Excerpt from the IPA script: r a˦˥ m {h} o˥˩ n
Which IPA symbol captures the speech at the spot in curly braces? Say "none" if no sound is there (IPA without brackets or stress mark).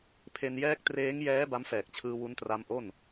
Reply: ʔ